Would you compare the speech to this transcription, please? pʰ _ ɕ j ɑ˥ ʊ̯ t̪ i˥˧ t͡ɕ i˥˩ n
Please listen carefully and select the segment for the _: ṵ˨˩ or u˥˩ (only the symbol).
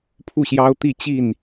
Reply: u˥˩